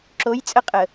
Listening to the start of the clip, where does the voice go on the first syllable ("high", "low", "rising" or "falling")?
rising